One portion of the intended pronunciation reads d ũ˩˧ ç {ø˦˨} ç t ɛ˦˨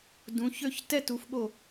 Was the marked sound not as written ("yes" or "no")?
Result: no